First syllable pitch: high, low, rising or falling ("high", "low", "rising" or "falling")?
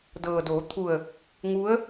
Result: low